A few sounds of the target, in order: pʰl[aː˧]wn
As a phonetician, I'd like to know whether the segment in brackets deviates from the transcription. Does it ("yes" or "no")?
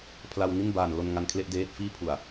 yes